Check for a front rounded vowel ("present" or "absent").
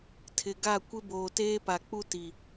absent